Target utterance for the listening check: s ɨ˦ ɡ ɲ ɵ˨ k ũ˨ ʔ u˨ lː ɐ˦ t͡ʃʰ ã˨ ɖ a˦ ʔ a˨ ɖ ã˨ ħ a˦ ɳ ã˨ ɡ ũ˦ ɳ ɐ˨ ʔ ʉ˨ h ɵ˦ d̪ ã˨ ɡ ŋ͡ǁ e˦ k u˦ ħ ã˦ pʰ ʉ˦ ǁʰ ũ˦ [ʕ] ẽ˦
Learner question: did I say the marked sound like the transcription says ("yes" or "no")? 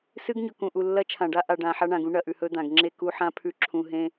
no